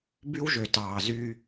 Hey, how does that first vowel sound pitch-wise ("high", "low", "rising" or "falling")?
high